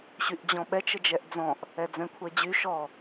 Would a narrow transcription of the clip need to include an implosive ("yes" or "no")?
yes